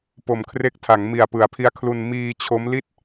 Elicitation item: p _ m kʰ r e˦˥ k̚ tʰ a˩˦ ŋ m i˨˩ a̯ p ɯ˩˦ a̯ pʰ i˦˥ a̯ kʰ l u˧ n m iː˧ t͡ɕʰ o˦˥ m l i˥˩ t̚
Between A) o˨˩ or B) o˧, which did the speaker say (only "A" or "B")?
A